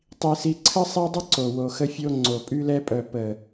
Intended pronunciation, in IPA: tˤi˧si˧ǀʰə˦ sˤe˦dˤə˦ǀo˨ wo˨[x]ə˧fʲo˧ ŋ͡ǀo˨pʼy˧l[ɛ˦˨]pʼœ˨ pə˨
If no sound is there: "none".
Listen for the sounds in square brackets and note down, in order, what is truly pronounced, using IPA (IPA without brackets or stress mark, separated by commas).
x, ɛ˧